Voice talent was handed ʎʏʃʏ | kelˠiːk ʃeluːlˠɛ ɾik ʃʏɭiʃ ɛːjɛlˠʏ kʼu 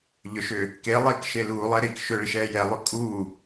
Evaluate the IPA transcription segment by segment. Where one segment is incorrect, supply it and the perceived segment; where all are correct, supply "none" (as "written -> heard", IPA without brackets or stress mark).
none